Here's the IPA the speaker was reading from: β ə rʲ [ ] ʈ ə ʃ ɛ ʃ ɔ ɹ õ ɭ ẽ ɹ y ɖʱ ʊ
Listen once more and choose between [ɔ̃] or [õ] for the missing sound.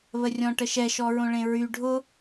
ɔ̃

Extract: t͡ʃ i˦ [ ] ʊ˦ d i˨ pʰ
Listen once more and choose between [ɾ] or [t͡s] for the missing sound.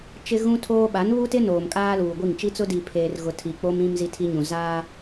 t͡s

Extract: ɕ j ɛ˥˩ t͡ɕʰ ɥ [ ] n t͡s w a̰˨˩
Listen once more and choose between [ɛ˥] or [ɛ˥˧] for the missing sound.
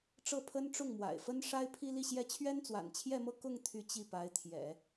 ɛ˥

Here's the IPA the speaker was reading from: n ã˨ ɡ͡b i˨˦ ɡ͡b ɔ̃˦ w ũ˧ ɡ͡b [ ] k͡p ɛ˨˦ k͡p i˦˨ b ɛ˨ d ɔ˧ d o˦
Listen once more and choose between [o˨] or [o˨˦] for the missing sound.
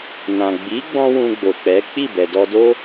o˨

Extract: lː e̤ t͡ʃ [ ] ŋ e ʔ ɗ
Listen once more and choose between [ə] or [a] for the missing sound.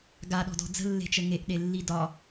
ə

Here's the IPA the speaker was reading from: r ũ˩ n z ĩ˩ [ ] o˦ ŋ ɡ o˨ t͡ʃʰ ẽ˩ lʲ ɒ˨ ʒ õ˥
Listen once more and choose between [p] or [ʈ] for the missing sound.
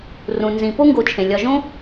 p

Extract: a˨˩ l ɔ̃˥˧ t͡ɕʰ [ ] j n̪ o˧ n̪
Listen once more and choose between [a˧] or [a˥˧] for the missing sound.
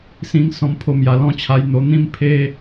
a˧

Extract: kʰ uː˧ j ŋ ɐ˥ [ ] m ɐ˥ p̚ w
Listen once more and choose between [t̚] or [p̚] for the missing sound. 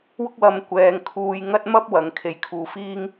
t̚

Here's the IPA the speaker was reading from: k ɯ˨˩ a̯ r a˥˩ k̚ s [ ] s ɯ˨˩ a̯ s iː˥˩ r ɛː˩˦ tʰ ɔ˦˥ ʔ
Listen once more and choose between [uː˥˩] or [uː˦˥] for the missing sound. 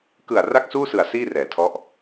uː˥˩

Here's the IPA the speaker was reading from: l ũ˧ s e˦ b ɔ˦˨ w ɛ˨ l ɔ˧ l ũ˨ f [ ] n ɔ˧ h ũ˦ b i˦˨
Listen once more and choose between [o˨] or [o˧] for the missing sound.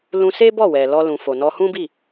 o˨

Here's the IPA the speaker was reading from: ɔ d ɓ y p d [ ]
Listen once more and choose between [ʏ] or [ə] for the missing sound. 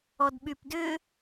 ʏ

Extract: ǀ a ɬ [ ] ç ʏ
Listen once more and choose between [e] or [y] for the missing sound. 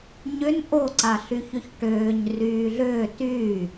y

